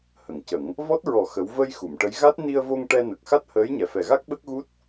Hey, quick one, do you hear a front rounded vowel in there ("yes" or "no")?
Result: no